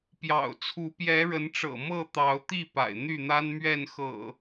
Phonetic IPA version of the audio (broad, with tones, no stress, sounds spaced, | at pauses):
p j ɑ̰˨˩ ʊ̯ t͡sʰ u˨˦ p j ɛ˨˦ ɻ ə˨˦ n ʈ͡ʂ ɤ̰˨˩ m ɤ˥˨ t̪ ɑ˨˦ ʊ̯ t̪ i˥˨ p a̰˨˩ ɪ̯ n̪ y˥˨ n̪ a˦ n m ɥ ɛ˥˨ n x ɤ̰˨˩